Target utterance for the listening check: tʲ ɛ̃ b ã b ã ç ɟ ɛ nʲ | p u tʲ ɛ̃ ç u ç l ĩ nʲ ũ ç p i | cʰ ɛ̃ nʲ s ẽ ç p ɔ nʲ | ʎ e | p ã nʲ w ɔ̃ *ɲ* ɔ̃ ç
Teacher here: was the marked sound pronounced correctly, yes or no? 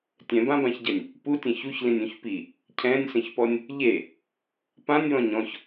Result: yes